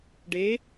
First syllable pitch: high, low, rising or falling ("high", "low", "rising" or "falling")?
rising